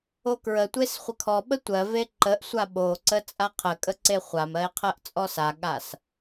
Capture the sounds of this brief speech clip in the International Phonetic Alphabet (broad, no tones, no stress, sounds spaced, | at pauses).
o k ɹ ə tʷ e s χʷ ə kʰ ɔ ɓ ə tʷ ɜ v e ǃ ə ʔ sʷ a ɓ o ǀ ə t͡sʼ a qʰ ə kʼ ə ǀ e χʷ a m ɜ e̯ qʰ ɜ ʔ t͡sʼ ɔ s a ɠ a s